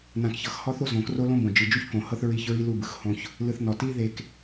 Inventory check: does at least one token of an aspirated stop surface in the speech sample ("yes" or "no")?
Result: no